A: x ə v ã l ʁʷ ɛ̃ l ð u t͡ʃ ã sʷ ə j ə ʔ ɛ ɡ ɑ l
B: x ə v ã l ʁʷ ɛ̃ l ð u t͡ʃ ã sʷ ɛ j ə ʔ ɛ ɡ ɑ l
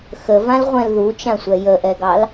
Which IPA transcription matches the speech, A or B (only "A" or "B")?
B